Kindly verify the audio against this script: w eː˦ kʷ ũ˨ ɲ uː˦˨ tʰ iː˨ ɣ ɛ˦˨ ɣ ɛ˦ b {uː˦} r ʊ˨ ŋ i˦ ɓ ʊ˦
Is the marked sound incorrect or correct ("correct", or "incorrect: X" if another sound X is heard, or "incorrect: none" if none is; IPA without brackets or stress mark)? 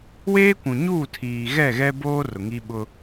incorrect: oː˦